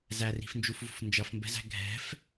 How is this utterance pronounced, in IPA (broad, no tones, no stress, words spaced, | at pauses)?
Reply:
zæri̤fnd͡ʒufvṳf nd͡ʒʌfmbɛ̤zæ̤ ɡʱɛ̤f